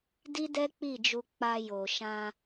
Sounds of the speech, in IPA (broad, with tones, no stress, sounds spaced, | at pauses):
d i˦ d ɛ˦ k͡p i˦˨ d͡ʒ u˧ k͡p a˧ j o˨ ʃ ã˧